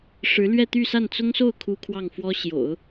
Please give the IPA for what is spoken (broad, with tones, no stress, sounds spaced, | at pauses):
ʂ ɻ̩˧˥ l ɥ ɛ˥˧ t̪ y˥˧ s a˥˩ n t͡s ʊ˥ ŋ s o˥˩ ʊ̯ kʰ u˥ kʰ w ɑ˥˩ ŋ f w ɔ˥ ɕ j o̰˨˩˦ ʊ̯